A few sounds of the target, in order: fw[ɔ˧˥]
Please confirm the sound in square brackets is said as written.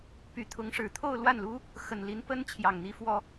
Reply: no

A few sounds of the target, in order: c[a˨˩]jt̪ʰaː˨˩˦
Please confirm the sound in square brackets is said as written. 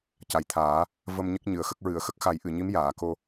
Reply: yes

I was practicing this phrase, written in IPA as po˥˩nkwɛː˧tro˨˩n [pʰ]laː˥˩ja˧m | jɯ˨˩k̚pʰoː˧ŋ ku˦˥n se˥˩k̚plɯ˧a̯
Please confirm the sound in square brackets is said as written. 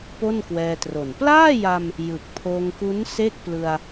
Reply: no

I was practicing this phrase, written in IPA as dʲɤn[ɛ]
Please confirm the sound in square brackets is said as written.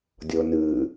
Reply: no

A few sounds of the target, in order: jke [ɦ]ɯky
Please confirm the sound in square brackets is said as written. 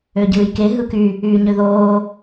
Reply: yes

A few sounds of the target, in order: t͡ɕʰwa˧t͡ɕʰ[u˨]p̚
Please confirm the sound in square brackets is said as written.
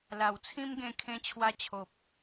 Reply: no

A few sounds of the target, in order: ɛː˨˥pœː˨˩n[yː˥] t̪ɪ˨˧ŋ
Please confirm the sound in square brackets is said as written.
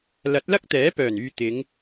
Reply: no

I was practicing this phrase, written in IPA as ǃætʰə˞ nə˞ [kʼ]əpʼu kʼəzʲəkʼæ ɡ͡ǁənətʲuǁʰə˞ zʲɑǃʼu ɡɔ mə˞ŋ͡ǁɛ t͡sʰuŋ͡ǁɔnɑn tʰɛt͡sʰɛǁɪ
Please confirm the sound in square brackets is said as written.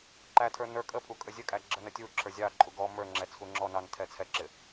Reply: yes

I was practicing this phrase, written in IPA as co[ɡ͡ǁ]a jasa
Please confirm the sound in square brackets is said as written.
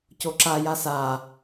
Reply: no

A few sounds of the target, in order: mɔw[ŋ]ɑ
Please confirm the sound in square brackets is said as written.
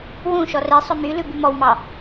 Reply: no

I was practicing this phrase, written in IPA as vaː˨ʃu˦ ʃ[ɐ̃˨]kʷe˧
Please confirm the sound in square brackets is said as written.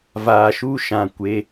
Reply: no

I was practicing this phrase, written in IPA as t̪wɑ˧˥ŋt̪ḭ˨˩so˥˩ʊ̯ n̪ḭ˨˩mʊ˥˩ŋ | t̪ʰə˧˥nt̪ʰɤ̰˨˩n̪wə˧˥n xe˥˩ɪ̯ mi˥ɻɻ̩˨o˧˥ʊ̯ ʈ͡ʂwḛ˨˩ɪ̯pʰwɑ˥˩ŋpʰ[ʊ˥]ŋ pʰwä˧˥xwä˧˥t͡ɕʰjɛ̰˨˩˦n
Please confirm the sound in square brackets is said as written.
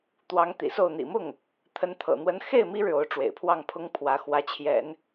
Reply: yes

